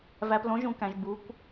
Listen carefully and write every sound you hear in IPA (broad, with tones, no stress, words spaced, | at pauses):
væ˨plõ˨˦ʒũ˨kæ̃˨ʒ bu˨˦kʷ